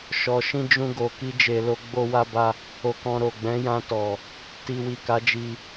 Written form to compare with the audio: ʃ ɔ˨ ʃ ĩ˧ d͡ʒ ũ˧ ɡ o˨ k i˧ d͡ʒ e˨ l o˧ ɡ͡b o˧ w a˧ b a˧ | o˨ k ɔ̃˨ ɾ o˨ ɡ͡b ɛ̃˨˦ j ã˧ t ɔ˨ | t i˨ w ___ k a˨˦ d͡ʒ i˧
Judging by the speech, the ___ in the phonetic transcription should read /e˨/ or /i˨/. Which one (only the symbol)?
i˨